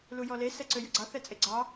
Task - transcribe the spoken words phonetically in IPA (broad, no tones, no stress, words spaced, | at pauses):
lujɔle sɛǀøjɵɡ͡ǀɑ θɛt͡sʼeɡ͡ǀɑ